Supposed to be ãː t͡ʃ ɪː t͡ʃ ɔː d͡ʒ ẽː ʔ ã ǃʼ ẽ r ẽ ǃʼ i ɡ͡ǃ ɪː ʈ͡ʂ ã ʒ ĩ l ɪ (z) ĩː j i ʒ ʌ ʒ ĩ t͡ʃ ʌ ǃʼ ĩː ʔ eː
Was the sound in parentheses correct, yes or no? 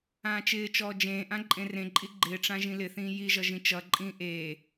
no